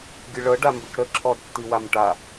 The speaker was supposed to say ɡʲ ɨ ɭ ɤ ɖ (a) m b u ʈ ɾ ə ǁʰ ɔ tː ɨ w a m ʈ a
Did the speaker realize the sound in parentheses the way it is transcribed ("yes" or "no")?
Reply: yes